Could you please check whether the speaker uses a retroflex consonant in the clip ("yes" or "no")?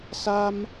no